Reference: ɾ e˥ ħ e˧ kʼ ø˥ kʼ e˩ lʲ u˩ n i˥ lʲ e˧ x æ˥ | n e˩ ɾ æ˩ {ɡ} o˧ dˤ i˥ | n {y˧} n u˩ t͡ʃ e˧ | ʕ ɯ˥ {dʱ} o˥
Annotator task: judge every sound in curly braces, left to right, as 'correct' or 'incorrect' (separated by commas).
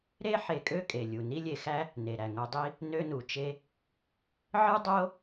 incorrect, incorrect, incorrect